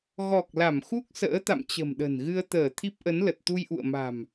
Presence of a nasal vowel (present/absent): absent